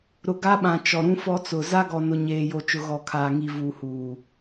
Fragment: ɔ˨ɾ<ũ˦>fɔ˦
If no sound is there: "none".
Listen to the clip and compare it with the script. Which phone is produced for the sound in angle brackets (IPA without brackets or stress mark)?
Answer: ũ˦